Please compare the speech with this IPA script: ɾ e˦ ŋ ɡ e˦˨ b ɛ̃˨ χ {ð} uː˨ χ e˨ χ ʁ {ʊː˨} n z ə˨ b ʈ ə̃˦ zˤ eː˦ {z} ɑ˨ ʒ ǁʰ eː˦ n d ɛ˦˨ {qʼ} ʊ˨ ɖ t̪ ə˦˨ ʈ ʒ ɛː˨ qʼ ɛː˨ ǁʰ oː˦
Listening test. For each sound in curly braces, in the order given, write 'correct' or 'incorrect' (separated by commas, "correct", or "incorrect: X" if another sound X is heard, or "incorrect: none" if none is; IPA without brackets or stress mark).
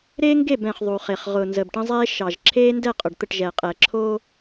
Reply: incorrect: ðˤ, correct, incorrect: ʃ, correct